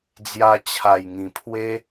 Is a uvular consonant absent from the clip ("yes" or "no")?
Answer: yes